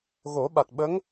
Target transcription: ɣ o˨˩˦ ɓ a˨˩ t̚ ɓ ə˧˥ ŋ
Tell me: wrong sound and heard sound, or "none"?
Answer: none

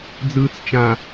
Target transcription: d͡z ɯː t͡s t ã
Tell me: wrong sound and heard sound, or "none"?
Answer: t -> t͡ʃ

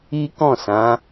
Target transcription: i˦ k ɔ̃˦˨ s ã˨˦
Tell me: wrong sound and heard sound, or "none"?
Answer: none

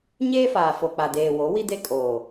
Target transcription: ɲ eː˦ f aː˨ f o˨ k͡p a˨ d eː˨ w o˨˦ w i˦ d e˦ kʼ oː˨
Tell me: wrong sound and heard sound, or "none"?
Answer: none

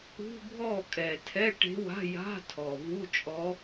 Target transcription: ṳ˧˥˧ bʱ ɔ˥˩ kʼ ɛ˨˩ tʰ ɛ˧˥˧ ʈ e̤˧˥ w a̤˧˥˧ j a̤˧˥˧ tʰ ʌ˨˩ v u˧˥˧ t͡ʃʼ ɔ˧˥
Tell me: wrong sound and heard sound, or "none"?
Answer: ʌ˨˩ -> ɔ˨˩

